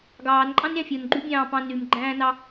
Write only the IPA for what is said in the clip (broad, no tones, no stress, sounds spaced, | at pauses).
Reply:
ɡ ɑː n ǃʼ ɑ̃ n ɾʲ ɑ̃ fʲ o n ɡ͡ǃ y bʲ ɑ̃ː p ɑ̃ n y m ɡ͡ǃ æ̃ː n ɑ